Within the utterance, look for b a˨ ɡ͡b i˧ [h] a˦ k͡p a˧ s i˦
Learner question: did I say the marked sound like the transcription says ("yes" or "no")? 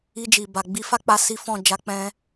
no